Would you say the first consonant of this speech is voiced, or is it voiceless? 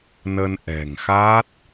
voiced